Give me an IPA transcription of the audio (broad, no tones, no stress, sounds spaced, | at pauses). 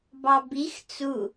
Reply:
b ɑ b i x t͡s u